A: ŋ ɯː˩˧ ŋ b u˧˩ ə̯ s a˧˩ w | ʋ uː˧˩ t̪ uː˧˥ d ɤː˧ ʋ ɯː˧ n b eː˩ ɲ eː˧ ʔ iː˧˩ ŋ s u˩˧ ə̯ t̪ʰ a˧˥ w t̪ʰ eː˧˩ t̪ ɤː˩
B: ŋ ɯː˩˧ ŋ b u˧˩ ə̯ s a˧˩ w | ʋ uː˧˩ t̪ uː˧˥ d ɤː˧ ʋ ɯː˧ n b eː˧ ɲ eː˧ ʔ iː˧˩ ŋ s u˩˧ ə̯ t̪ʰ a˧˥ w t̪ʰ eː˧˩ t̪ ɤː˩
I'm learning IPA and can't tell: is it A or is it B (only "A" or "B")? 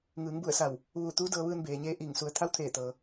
A